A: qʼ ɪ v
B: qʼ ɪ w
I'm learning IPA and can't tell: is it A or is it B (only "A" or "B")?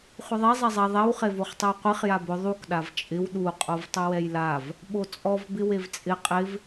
A